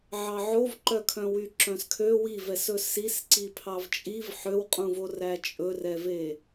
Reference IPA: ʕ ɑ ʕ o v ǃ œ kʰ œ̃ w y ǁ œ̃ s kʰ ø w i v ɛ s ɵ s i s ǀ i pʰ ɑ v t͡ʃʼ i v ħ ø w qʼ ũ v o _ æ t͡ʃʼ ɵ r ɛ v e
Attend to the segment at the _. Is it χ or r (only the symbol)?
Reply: r